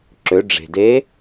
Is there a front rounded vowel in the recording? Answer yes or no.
yes